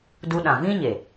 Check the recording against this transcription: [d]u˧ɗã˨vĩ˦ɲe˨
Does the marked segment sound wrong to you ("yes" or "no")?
no